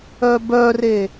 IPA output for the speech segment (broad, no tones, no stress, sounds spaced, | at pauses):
œ b œ r e